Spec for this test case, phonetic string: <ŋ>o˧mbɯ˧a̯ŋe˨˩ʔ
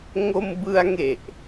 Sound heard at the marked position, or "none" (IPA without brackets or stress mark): ŋ